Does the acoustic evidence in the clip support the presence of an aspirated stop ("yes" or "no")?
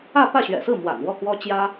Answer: no